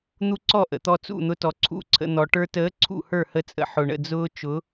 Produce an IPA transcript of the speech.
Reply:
n̪ u˦ ǀ ɔ˦˨ ʔ ə̰˨ t̪ ɔ˧ t͡s ṵ˦˨ n̪ ʊ˧ t ɔ˨ ǀʰ ṵ˦ ǀʰ ə̰˧ n̪ ɔ˨ ʈ ə˞˧ t əː˨˦ ǀʰ ṵ˦˨ h ə˞˦˨ h ə˧ t͡sʼ ə̰˨ ħ ʊ˨ ɳ ə̰˦˨ d͡z ʊː˦ t͡ʃ ʊ˨˦

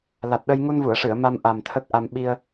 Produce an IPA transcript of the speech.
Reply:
l a˨˩ t̚ ɗ ə˧ j ŋ u˧ n v u˨˩˨ ə̯ ʂ ɨ˨˩˨ ə̯ m a˧ m ʔ a˨˩ m t̪ʰ ə˦˥ k̚ ʔ a˧ m ɓ i˧ ə̯

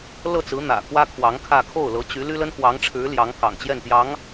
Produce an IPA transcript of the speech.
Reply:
l ɤ˥˩ t͡s ɹ̩˧˥ n̪ ä̰˨˩ k w ä˥ kʰ w ɑ˧˥ ŋ kʰ ä˥˧ kʰ o˥˩ ʊ̯ l ɤ˧˥ t͡ɕ y˧˥ l y˥ l ə˥ n x w ɑ˧˥ ŋ ʈ͡ʂʰ ɻ̩˧˥ l j ɑ˧˥ ŋ k ɑ̰˨˩ ŋ t͡ɕ j ɛ˥˩ n t̪ j ɑ˧˥ ŋ

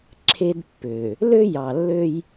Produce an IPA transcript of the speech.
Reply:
ǁʰ e˦ d pː ø˨ | l ø˦ j ɑ˨ lː ø˦ j

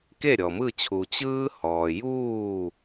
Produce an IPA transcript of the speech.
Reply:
k e˥˨ ɾʲ ɔ˨ m ɯ˥˨ t͡ɕʰ uː˨ t͡ɕ ɯː˦ h ɔː˨ j uː˥˨

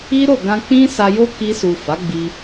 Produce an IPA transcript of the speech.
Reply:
i˦ ɾ o˦˨ ɡ ã˧ k͡p ĩ˦ s a˧ j o˦ k i˧ s u˨ f a˨˦ ɡ͡b i˧

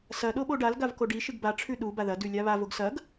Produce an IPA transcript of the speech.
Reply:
s ɐ ɗ o ɓ o ɖ a l ɡ a v k o ɖ i ʃ ɨ ɡ b a ʈ͡ʂʰ ʉ ɗ u b a ð ɐ d ʉ lʲ a β a v o ɡ s ɐ ɡ

